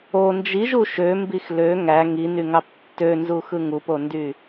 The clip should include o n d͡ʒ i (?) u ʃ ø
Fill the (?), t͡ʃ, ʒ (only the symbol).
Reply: ʒ